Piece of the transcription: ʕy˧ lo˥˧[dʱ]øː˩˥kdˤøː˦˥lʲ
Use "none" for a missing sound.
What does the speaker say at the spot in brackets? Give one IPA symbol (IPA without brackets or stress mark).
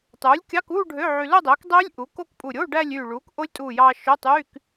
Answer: dˤ